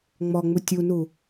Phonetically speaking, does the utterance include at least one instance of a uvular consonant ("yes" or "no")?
no